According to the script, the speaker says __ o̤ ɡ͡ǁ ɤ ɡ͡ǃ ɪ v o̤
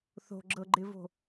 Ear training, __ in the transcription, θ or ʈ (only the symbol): θ